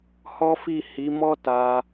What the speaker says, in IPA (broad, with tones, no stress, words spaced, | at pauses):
hɔ˦fi˦˨ hi˨˦mɔ˦ ta˧